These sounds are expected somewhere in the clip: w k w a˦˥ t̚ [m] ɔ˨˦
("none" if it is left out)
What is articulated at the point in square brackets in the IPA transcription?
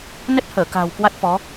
f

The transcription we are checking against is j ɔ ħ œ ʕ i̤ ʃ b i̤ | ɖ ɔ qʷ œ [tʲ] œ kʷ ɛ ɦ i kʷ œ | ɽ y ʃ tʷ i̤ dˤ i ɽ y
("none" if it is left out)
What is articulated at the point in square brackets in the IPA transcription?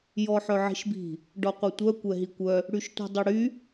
tʷ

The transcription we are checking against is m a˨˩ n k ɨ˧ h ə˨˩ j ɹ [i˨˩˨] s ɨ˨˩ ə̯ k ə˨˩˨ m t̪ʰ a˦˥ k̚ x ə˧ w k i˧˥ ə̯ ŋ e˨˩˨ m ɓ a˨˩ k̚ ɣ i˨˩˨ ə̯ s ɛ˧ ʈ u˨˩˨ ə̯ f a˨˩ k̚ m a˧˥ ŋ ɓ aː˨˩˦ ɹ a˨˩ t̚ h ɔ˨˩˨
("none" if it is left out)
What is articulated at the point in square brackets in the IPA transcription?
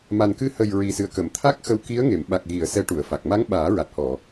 i˨˩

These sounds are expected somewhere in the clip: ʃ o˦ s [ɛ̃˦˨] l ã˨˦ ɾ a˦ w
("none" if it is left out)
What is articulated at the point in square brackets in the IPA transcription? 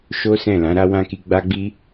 ɛ̃˦˨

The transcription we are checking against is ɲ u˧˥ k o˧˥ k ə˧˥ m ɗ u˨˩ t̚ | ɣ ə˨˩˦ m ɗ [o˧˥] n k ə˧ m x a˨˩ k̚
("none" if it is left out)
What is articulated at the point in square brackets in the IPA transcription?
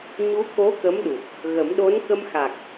o˧˥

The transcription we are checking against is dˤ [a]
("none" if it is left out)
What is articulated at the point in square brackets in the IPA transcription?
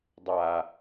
a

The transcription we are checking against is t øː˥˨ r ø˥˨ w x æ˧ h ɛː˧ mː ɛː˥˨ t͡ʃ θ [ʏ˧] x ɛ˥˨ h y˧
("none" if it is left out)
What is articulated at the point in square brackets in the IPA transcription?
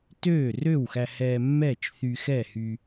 y˧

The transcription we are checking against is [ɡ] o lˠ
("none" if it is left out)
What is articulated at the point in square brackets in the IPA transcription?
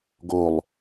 ɡ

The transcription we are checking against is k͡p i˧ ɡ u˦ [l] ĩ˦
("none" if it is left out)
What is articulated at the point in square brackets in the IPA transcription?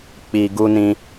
n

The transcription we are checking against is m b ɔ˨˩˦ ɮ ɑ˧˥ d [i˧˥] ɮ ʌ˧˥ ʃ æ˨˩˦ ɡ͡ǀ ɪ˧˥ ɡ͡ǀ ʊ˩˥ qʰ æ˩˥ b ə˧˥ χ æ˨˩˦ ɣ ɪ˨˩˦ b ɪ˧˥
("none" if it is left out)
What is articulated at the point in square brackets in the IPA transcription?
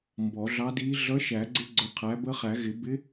i˧˥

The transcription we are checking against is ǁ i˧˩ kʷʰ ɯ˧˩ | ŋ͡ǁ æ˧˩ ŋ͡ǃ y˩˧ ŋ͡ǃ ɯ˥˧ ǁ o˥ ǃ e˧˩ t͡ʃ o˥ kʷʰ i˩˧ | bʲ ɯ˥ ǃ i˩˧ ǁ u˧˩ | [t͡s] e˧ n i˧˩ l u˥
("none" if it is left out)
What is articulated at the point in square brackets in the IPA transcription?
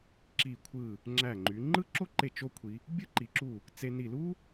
t͡s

